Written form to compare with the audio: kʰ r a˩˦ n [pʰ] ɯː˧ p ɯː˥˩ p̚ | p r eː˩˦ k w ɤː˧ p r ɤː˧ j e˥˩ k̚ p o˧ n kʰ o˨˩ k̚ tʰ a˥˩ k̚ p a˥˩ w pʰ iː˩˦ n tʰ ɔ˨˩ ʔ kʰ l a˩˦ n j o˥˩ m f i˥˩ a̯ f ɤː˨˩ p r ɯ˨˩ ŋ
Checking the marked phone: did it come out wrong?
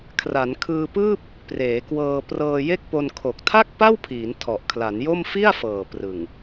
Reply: yes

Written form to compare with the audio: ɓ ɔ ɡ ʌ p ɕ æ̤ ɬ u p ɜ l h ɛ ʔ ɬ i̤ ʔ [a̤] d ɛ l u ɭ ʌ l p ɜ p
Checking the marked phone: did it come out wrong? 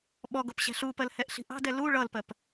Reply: yes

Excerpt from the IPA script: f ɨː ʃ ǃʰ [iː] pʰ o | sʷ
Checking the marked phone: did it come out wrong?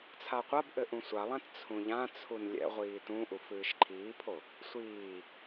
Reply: no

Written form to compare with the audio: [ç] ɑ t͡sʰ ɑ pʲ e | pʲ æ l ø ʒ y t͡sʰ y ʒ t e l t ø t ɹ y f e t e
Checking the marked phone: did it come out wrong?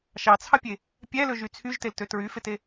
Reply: yes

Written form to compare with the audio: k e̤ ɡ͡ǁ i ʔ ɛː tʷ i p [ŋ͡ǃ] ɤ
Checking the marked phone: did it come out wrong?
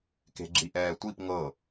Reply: yes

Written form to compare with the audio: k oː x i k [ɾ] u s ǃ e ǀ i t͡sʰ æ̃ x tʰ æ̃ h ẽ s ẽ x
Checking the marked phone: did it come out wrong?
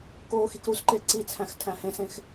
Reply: no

